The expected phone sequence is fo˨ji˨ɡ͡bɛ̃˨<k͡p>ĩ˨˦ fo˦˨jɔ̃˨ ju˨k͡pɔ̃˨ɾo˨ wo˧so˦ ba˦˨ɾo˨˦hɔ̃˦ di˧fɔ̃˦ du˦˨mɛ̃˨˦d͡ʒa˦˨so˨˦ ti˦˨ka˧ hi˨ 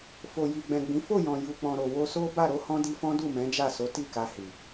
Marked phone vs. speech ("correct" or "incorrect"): incorrect